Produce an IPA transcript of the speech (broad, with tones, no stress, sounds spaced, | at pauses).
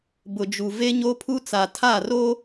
b ʊ˨ d͡ʒ u˨ v e˦ ɲ o˦ pʰ u˦ t͡s a˨ tʰ a˦˨ r o˦